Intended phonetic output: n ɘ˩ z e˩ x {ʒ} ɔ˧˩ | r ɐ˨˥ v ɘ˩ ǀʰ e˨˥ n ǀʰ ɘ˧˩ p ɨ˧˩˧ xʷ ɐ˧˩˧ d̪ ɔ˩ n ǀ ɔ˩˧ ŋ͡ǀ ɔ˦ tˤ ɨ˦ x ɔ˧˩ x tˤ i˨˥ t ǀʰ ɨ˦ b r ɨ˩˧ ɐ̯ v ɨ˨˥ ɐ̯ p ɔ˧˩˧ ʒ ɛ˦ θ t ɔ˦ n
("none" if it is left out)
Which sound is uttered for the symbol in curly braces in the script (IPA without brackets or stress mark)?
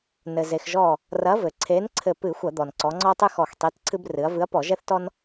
ʒ